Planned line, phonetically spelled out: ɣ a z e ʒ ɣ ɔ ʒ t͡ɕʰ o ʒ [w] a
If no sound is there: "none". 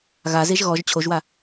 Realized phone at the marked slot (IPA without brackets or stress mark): w